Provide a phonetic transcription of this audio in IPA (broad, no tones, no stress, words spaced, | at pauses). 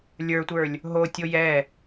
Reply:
lʲə˞tʷə˞lʲ | ɦotʲo jɛ